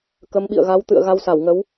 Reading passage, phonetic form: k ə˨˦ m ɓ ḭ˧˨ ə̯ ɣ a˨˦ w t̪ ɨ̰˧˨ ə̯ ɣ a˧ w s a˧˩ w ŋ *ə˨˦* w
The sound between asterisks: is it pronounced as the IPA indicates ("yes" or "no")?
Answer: yes